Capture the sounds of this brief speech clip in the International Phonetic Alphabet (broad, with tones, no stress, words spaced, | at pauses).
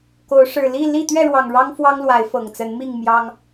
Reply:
ko˨˦ʊ̯ ʂɻ̩˨˩li˥˨ li˥˨ t̪ɥɛ˥˨ɻwɑ˨˩ŋ ɻɑ˦ŋ fwɑ˦ŋlwa˨˦ɪ̯ fɤ˨˩ŋt͡sə˨˦nmi˥˨ŋ mjɑ˦ŋ